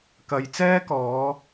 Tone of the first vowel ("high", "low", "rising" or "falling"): low